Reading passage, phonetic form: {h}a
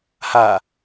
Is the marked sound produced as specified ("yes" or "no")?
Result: yes